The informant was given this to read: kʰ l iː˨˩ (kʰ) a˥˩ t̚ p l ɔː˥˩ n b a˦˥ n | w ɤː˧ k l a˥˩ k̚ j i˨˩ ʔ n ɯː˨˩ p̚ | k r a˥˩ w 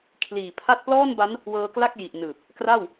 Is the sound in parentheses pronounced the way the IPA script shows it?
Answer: no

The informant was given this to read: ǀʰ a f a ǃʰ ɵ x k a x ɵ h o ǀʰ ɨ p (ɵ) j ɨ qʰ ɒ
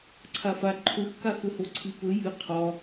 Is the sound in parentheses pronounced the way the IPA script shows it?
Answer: yes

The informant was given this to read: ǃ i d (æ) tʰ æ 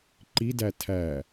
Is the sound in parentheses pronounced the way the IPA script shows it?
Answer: yes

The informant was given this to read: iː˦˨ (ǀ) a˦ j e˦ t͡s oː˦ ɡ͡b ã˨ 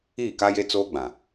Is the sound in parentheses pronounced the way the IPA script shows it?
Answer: no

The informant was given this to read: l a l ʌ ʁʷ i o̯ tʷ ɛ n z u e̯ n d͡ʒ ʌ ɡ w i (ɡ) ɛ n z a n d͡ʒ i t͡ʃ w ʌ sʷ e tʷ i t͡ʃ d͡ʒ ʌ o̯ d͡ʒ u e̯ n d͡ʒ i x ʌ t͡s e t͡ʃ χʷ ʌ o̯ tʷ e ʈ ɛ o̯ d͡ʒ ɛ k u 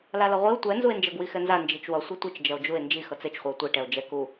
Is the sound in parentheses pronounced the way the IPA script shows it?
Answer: no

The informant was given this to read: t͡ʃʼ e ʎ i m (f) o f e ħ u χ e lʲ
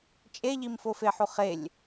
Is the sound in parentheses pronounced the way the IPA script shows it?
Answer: yes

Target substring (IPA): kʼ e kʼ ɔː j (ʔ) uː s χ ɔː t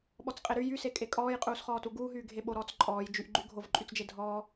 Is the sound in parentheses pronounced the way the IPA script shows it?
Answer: no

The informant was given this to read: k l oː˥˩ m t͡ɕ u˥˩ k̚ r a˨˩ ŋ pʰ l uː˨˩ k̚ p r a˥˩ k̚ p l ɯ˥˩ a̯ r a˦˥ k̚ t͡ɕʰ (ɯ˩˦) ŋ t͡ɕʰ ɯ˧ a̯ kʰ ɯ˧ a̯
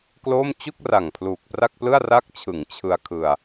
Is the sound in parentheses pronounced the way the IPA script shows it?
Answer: yes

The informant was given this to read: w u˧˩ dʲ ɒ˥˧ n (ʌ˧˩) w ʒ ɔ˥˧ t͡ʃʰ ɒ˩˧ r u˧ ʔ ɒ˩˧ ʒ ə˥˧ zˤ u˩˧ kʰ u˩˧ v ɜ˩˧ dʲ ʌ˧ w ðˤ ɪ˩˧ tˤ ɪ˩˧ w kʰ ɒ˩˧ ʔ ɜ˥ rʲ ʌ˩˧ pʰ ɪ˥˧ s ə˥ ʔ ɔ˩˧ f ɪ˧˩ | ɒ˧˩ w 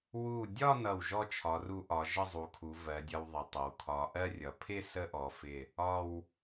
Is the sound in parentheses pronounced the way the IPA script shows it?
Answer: yes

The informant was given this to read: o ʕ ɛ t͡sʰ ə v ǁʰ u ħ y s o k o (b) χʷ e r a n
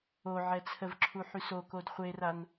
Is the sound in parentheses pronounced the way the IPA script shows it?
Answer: no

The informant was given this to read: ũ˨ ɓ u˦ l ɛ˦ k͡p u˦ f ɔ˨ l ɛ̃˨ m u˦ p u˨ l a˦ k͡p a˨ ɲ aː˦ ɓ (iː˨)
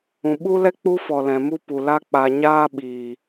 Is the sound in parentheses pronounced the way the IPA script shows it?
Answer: yes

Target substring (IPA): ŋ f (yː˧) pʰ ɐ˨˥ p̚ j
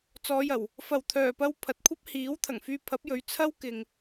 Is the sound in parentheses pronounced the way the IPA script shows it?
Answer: yes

